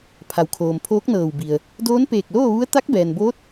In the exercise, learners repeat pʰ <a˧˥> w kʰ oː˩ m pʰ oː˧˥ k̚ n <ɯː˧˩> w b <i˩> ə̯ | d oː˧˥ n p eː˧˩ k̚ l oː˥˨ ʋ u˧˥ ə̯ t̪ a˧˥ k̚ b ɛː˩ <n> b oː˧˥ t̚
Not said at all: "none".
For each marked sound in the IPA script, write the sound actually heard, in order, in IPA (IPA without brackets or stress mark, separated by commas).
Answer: a˩, ɤː˧˩, i˩, n